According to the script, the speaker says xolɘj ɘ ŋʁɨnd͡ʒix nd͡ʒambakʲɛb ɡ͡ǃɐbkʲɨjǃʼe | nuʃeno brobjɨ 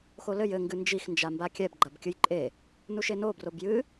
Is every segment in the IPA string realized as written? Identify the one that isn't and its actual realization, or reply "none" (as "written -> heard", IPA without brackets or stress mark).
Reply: ʁ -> ɡ